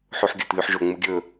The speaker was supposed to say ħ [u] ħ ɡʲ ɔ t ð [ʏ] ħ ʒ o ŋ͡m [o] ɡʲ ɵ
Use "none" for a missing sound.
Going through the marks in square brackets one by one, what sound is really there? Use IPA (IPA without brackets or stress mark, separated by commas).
u, y, u